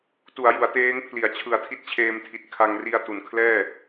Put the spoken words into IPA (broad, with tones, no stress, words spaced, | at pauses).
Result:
tu˩˦a̯ju˩˦a̯teː˦˥ŋpʰli˨˩a̯ t͡ɕʰɯ˨˩a̯tʰi˦˥t̚t͡ɕʰeː˧mtʰi˨˩t̚ kʰa˧ŋri˧a̯ tu˩˦nkʰlɛː˥˩